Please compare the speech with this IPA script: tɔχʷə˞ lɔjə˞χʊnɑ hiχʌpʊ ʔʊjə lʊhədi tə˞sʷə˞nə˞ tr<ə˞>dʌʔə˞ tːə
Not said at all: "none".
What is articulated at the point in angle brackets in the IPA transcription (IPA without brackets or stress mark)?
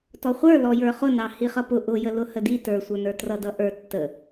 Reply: ʌ